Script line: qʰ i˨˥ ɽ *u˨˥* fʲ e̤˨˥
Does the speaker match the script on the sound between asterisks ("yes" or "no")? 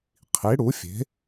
yes